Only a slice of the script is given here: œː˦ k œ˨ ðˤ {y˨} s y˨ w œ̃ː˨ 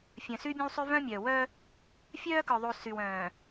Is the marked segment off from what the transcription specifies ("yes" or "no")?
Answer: yes